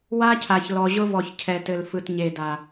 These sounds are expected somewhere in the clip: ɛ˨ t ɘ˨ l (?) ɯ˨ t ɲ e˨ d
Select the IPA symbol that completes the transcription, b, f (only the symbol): f